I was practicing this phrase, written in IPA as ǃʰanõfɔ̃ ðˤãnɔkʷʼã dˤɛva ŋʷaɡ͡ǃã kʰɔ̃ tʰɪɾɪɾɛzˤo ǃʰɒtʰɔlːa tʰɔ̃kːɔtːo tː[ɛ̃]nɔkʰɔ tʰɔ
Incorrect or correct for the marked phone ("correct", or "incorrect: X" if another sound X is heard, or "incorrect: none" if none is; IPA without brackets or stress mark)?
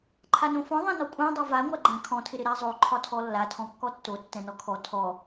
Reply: correct